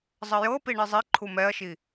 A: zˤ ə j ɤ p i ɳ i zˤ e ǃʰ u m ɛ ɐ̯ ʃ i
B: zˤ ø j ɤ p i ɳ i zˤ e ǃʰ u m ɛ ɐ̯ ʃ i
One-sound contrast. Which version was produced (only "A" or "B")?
A